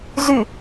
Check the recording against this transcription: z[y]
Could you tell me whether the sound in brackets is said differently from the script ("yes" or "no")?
no